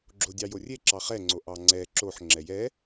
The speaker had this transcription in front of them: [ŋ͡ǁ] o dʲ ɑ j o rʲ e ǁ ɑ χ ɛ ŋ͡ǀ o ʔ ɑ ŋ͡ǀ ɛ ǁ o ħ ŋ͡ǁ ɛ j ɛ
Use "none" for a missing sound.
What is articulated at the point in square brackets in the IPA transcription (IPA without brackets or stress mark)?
ɡ͡ǁ